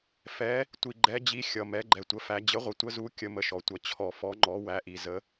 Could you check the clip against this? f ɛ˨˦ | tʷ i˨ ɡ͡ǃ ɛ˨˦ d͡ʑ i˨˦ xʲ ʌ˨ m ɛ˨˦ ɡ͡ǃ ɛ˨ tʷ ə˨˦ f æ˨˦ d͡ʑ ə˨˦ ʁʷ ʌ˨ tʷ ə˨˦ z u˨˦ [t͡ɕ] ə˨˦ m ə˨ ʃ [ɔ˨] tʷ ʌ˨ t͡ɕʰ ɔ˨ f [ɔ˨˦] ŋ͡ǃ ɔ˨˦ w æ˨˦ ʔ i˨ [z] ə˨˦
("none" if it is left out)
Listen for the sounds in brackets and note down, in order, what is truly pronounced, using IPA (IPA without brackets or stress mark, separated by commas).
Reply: kʲ, ɔ˨, ɔ˨˦, z